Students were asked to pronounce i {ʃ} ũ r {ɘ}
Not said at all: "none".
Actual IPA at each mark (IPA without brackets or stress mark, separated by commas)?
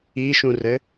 ʃ, ɘ